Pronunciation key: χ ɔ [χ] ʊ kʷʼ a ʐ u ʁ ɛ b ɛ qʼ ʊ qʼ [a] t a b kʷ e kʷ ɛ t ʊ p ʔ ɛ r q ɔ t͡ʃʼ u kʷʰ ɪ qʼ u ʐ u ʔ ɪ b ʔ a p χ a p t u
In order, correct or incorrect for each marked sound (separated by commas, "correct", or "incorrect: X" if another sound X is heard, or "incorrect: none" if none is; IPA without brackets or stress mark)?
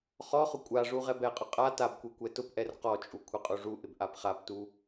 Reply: correct, correct